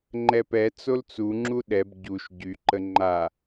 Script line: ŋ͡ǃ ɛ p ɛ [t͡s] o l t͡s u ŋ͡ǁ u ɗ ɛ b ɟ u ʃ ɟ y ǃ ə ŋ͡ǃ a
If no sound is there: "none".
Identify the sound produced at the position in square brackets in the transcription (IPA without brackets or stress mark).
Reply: t͡s